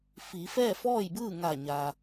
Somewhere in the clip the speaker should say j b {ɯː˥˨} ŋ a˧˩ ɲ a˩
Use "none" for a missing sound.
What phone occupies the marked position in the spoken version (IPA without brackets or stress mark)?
ɯː˥˨